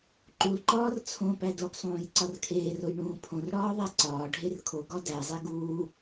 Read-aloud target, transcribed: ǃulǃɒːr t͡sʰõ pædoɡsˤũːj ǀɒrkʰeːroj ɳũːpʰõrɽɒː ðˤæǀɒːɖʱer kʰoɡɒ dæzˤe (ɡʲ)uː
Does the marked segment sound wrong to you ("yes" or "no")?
yes